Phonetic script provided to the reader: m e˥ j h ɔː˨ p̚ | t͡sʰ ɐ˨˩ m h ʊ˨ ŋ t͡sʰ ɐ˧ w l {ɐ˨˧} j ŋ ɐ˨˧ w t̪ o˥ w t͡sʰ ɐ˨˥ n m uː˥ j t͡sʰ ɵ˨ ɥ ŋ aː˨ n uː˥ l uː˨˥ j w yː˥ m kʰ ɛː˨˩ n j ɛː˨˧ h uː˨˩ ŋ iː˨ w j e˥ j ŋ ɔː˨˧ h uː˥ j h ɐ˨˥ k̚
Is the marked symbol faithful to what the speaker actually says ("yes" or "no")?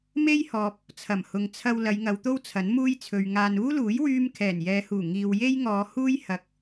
yes